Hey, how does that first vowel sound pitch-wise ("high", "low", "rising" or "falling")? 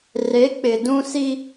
rising